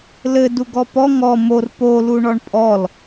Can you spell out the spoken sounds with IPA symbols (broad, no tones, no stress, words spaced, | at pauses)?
lɘ duɡɔpɔ ŋɔ mor po luɳɔɳpʼɔl